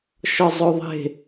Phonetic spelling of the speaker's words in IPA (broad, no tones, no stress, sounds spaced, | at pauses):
ʃ ɒ zˤ o ðˤ e̤